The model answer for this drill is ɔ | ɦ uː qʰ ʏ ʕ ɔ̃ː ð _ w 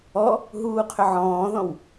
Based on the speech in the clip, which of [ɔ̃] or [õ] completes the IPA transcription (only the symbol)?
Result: ɔ̃